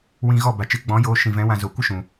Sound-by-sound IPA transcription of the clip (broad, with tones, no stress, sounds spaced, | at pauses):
w ĩ˧ ɣ ɔ˦˨ b a˨ t͡ʃ ɨ˨˦ ɡ͡b ɔ̃˨˦ j oː˧ ʃ ĩ˨ v ɛ̃˨˦ w ã˧ z o˨ kʷ ɨ˦ ʃ ũ˨